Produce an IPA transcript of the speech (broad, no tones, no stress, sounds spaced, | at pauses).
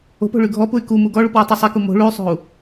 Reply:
o̤ p o̤ ɭ y ɡʱ ɔ p u y̯ k u m u ɡ ɔ ɭ u p w ɔ tˤ i sˤ ɛ k u m o̤ ɭ u y̯ sˤ o̤ u̯